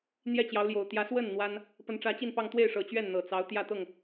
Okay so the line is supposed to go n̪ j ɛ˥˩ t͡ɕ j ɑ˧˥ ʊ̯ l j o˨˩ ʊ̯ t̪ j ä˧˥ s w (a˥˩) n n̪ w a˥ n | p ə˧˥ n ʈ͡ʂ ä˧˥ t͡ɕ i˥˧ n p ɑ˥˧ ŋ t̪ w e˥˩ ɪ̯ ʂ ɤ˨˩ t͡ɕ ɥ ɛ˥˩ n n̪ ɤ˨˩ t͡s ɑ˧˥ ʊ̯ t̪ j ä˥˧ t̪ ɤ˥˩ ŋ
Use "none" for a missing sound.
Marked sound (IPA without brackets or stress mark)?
ə˥˩